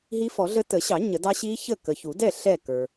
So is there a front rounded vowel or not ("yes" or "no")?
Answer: no